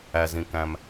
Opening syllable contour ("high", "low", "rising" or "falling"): low